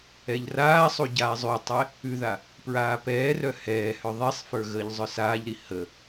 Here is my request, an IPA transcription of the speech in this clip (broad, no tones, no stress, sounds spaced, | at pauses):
ɛ ʎ r aː sˤ u ɟ aː zˤ ʉ tˤ ɛ | ʉ ð a | p ɹ aː p ɛː r œ h ɛː h œ ðˤ ɛ sˤ f ə˞ ɣ əː ʎ zˤ œ s aː ʎ ɾ i h ə